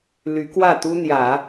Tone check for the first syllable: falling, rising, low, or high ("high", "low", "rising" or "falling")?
rising